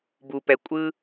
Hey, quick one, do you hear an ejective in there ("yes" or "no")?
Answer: yes